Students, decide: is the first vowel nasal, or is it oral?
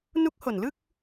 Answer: oral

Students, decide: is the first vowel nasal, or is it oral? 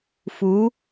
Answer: oral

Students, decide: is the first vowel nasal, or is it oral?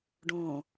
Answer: nasal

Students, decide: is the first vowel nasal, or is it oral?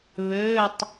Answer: oral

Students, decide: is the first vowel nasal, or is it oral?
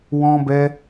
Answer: nasal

